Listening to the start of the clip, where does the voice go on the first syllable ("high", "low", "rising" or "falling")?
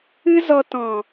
high